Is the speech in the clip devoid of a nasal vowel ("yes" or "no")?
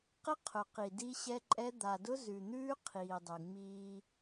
yes